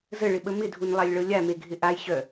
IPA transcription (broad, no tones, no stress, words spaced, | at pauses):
zəɭɪɓə mɪdʱunlˠalʲɭɤ lʲameɡʱɪ ʔajɕœ